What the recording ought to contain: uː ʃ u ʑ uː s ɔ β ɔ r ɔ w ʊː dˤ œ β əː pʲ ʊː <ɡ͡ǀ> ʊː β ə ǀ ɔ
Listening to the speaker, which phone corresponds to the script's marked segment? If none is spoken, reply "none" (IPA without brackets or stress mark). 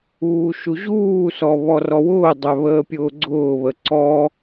ɡ͡ǀ